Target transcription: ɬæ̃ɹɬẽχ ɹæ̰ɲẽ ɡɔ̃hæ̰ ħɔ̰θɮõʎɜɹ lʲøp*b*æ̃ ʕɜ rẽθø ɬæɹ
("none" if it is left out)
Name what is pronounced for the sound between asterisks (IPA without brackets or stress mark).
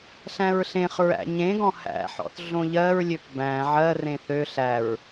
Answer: b